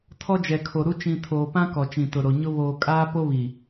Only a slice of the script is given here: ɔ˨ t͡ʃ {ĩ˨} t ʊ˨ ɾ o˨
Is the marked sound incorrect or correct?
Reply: correct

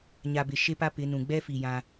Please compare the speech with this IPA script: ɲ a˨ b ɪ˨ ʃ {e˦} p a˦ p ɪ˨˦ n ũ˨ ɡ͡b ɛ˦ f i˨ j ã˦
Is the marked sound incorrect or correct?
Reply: correct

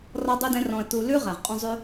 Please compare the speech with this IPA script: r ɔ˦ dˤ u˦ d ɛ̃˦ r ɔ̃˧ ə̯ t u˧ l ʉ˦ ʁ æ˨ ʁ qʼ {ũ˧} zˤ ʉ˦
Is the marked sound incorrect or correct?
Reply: correct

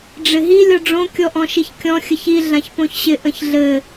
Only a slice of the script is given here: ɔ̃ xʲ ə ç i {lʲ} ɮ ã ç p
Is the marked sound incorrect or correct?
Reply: incorrect: none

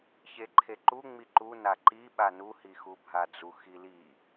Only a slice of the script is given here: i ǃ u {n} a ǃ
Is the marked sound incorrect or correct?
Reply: correct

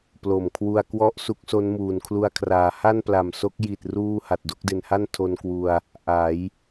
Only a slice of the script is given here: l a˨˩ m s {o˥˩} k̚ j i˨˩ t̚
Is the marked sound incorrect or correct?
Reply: incorrect: o˦˥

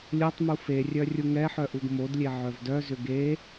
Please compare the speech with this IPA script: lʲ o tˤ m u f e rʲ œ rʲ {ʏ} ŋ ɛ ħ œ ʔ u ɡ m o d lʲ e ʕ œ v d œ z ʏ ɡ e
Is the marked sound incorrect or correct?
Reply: incorrect: u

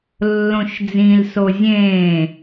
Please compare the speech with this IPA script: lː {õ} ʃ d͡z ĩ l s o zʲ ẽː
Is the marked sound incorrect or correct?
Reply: correct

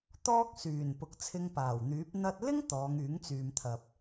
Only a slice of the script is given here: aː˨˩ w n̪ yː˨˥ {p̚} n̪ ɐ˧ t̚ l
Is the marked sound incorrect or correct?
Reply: correct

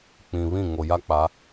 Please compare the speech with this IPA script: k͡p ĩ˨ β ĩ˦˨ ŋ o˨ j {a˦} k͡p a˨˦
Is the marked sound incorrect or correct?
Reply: correct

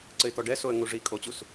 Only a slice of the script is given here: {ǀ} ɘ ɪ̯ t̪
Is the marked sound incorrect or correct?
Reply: correct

